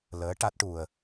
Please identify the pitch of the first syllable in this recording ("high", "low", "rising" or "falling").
rising